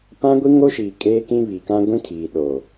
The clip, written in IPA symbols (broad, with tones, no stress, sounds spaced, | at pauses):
p ã˦ ɡʷ i˦ ŋ o˦ ʃ iː˨ kʼ eː˦ k ĩ˦ β i˨ k ã˦ ɡʷ ĩ˦ tʰ iː˨ ɗ oː˨